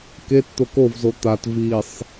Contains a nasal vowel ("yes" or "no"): no